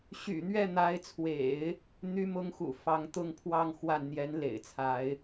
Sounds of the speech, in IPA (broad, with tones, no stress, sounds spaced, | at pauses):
ɕ y̰˨˩ n̪ ɥ ɛ˥˩ n̪ a˧˥ ɪ̯ t͡sʰ w ḛ˨˩˦ ɪ̯ | n̪ y˧˥ m ʊ˧˥ ŋ x ṵ˨˩ f ɑ˧˥ ŋ t̪ ʊ˥ ŋ pʰ w ɑ˥˧ ŋ x w a˥˩ n n̪ j ɛ˧˥ n l ḛ˨˩ ɪ̯ t͡sʰ a˧˥ ɪ̯